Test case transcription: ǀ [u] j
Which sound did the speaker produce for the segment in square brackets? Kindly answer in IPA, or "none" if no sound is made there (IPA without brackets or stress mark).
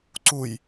u